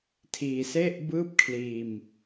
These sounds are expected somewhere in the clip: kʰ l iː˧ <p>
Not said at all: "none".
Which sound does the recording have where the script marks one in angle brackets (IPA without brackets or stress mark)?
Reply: m